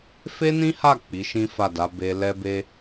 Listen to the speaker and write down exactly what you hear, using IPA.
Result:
f e˦ n ĩ˦ h a˦˨ k͡p i˨˦ ʃ ĩ˦ f a˦˨ d a˨˦ b e˧ l ɛ˦ b e˦

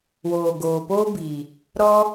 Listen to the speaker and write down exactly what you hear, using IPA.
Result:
w oː˨ ɡ oː˨ p oː˦ b iː˨ | ɾ ɔ˦

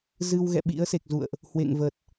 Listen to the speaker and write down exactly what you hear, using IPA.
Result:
z ɨ˧ w ɣ ɛ̰˧˨ ɓ ḭ˧˥ ə̯ s e˨˩ k̚ z ṵ˧˨ ə̯ ʔ | h w ḛ˧˨ ŋ v ə˨˩ t̚

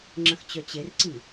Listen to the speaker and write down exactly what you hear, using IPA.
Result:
ŋ͡ǁ ə̃ x t͡ɕ œ t͡ɕ e r ǀ i

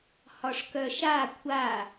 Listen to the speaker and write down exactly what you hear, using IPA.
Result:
h ɒ ʂ k œ ʃ a kʷʰ a

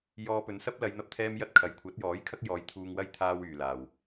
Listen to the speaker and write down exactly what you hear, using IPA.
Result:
j ɔː˧ p ɵ˨˧ n s ɐ˥ p̚ l ɐ˨˧ j n̪ ɐ˧ p̚ t̪ʰ ɛː˥ m j ɐ˥ t̚ kʰ ɐ˨ j kʷʰ ɐ˨˥ t̚ j ɔː˨˥ j kʰ ɐ˥ k̚ j ɔː˨˧ j t̪ʰ uː˧ ŋ w ɐ˥ j t̪ʰ aː˥ w yː˨ l aː˨ w

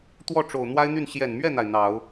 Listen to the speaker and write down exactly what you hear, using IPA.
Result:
t̪ w ɔ˥˩ ʈ͡ʂ o˨˩ ʊ̯ n̪ w a˥ ɪ̯ n̪ y˥˩ n ɕ j ɛ˨˩ n m ɥ ɛ˥˩ n̪ a˩ ɪ̯ n̪ ɑ˨˩˦ ʊ̯

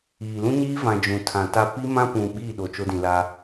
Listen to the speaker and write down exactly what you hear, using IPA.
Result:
iː˨ l ũ˦ ɲ iː˦ v ã˨ d͡ʒ ũ˨ tʰ ã˨ t a˦ p i˦ m ã˦ p ũ˨ ɓ iː˦˨ ɗ o˨ t͡ʃ o˦ d ĩ˨ l a˦

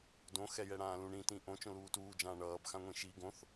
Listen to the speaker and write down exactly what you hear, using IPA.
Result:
d õ x ɛ j ɛ ɽ ãː l ũ ɳ ĩ t ĩ ʔ õ t͡ʃ õ l uː t uː d͡ʒ ãː ɳ ʌː b x ã ŋʷ ĩ ʃ i ɡ õ θ

